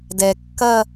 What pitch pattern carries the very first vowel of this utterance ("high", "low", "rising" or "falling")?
low